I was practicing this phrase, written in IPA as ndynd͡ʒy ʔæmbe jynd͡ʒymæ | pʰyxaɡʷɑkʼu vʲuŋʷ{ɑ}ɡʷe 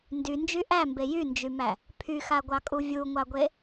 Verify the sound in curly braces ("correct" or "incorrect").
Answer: correct